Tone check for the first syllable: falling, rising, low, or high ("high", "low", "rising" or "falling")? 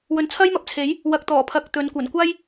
rising